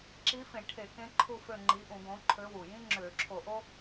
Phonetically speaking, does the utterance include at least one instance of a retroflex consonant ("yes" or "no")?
yes